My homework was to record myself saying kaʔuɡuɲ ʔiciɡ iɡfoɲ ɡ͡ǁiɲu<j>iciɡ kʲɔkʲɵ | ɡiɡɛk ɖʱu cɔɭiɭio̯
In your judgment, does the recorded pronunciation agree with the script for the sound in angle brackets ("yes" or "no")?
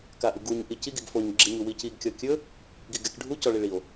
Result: no